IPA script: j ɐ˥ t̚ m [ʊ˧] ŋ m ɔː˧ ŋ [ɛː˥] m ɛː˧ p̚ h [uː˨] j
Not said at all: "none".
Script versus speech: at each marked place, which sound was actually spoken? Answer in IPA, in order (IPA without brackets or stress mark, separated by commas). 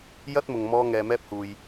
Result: ʊ˨, ɛː˨, uː˨